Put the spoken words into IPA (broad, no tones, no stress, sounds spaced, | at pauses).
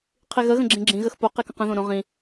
qʰ i ɣ ə ɣ ə̃ ɡ͡ǁ ĩ ɡ͡ǁ ĩ ɣ ə x p o q i k ə̃ q ə̃ ð õ ɾ õ ʁ ĩ